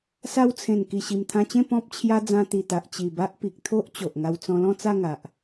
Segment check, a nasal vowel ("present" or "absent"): present